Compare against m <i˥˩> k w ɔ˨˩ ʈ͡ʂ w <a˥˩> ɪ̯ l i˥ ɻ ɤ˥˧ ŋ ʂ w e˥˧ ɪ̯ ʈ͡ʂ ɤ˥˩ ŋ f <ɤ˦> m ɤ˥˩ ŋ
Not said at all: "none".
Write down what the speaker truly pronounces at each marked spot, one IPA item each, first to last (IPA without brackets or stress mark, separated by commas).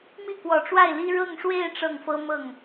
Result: i˥˩, a˥˩, ɤ˥